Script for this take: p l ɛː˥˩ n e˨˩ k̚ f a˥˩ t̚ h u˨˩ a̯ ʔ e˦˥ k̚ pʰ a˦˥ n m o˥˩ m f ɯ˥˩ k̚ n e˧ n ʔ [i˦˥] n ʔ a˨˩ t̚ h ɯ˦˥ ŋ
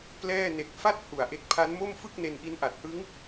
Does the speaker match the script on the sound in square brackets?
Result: yes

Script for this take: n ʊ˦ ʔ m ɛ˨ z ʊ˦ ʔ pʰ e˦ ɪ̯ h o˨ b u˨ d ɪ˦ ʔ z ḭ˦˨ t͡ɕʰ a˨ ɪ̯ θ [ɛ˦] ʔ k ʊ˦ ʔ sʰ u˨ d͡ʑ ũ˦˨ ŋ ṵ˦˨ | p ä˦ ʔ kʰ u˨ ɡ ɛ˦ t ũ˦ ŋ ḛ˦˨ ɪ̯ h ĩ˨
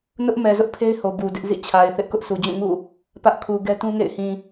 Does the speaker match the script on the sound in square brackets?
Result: no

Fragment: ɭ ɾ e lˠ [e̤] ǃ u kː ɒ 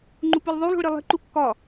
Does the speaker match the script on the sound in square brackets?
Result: yes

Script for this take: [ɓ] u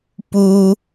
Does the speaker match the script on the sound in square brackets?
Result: no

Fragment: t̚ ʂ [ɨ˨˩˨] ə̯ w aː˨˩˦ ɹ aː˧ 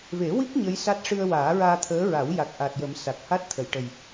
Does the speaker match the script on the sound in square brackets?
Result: no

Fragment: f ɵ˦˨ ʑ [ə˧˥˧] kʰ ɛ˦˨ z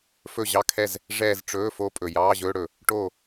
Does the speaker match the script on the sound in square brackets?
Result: no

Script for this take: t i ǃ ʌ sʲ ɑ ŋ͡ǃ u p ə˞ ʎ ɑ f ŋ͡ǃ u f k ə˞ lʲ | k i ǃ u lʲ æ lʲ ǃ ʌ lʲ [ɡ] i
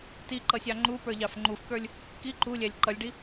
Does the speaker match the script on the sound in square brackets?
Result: no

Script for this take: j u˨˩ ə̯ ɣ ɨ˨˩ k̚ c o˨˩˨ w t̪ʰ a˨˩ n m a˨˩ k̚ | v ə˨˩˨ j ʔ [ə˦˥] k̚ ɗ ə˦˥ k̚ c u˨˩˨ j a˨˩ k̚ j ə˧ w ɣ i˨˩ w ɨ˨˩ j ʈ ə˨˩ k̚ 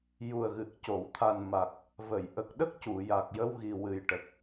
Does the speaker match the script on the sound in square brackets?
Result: no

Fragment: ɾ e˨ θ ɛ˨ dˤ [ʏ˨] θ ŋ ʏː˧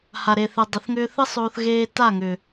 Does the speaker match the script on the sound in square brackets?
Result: no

